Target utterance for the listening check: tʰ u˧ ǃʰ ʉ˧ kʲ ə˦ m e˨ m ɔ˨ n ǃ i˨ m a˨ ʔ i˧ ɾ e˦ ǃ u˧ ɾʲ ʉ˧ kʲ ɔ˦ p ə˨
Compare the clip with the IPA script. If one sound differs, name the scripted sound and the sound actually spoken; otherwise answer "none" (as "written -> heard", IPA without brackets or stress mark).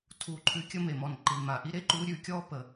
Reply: none